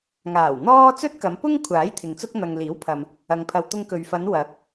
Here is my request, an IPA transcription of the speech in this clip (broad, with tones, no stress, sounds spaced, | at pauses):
ŋ aː˨˩ w n̪ ɔː˥ t͡s ɵ˥ t̚ k ɐ˨˧ m p ʊ˥ ŋ kʷʰ aː˨˥ j t̪ʰ ɪ˨ ŋ t͡s ʊ˥ k̚ n̪ ɐ˨ ŋ l iː˨˥ w pʰ ɐ˨ m | ɐ˧ ŋ pʰ ɐ˧ w t̪ ʊ˥ ŋ k ɵ˧ ɥ f ɐ˨˧ n w ɐ˨˥ k̚